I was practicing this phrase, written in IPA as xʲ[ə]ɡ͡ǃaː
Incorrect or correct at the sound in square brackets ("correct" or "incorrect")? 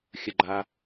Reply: correct